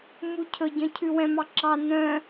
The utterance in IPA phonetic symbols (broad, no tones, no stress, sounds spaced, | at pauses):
m u cʰ ɵ ɟ œ̃ cʰ ʉ w ɛ̃ m ɑ ǁ ɑ n œ̃